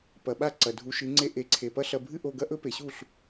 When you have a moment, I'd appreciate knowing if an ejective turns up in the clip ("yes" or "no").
no